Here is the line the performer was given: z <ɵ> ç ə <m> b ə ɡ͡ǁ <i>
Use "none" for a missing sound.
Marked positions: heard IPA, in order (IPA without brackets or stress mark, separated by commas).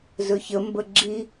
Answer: ɵ, m, i